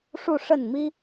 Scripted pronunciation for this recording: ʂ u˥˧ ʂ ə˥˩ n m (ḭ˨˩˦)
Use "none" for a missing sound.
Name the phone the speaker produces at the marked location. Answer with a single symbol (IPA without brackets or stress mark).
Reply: i˥